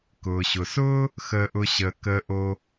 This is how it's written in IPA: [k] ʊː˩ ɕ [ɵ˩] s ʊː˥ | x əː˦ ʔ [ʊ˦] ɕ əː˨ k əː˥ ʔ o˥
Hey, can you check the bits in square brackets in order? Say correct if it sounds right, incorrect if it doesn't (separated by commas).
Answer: correct, incorrect, correct